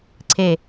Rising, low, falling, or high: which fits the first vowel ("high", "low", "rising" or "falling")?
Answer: low